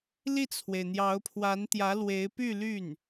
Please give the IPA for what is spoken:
li˥˩t͡sʰwe˩ɪ̯n̪jɑ˧˥ʊ̯ pʰwa˧˥nt̪jä˧˥lwe˧˥ɪ̯ py˥˧ly˥˩n

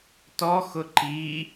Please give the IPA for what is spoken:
tɔ xʊǃi

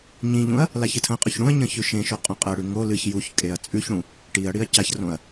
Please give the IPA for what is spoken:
ɲĩʎũɐ̯ | laçɨtʰɐ̃qʼɵç ɽũɐ̯ɲɐ̃ çʉʃẽʃo qʼõqʼɐɽʉ ŋo lɨç juçkʼeɐ̯ t͡sʼʉçɽũ | ʈiɐ̯ɽiɐ̯ caçrõɐ̯

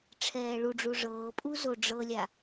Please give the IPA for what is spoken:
ʈ͡ʂʰɛːɭuɖ͡ʐu ʐɤːpʼu zoɖ͡ʐɤlʲa

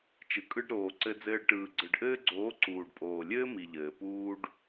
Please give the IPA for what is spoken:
t͡ʃɯ˨kʼɯ˧ɖɾoː˨ ǀɘ˧d͡zɘː˧ɖ ʈɯː˨ɡ͡ǀɯ˨ɖʔɘː˧ɡ͡ǀoː˨˦ ǀuː˨ɖpʼoː˨lʲɘː˦ mi˨ʎɘː˨ puː˦ɖ

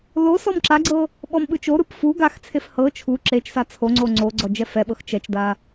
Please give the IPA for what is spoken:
lo sɔmǁaɡ͡ǀɤ | ɓɔmɓɯt͡ʃoɾɯp fu ɡaxt͡sʰef hɤ t͡ʃʰu ǁet͡ʃsa t͡sʰo ŋ͡ǀoŋ͡ǀoɡ͡ǀɔ d͡ʒɛfɛɓɤx t͡ʃɛt͡ʃda

